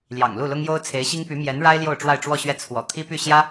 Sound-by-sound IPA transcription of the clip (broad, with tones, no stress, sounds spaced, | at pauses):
l j ɑ̰˨˩ ŋ l u˥˩ l ʊ˥ ŋ j o˥ ʊ̯ t͡sʰ e˧˥ ɪ̯ ɕ i˥ ŋ p y˧˥ m j ɛ˧˥ n ɻ a˥ ɪ̯ l j o˥˧ ʊ̯ ʈ͡ʂ w a˥˧ ɪ̯ ʈ͡ʂ w ɔ˥˧ ɕ ɥ ɛ˥˩ t͡sʰ w ɔ̰˨˩ t̪ʰ i˥ p y˥˩ ɕ j ä˥